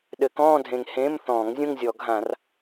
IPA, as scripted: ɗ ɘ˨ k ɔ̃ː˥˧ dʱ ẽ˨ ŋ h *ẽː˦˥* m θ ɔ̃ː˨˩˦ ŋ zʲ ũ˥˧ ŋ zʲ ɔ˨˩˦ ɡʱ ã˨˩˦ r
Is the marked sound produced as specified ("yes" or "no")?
no